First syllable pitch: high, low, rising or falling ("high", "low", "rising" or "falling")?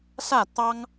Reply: falling